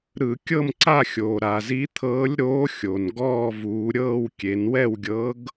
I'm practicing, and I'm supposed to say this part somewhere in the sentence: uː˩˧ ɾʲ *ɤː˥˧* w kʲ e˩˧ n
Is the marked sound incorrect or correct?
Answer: correct